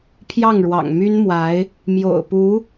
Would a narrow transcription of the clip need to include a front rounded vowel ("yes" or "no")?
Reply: yes